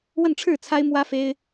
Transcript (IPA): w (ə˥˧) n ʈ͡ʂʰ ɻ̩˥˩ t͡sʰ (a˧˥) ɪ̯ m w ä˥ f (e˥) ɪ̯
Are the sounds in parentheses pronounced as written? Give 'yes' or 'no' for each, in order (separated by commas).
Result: yes, no, yes